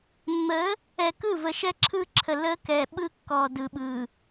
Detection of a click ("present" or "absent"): present